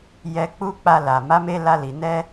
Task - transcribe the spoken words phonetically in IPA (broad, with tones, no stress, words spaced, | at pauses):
jɛ˧k͡pu˦k͡pa˧ la˨ ma˨˦me˧ la˧li˨ nɛ˧